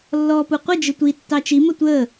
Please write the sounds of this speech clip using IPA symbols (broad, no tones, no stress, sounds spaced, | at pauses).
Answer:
lː ɔː p u qʷ ə d͡ʒ ə tʷ i tː ɑ t͡ʃ i m ə tʷ əː